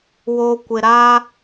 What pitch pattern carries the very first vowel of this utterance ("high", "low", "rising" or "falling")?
low